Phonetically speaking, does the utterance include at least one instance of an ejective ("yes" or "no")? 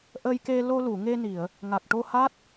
no